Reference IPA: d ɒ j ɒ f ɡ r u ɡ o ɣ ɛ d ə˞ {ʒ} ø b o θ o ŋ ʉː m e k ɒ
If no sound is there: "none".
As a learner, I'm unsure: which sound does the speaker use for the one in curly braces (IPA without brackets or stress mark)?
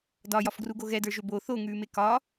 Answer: ʒ